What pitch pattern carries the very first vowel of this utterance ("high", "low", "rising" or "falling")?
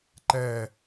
falling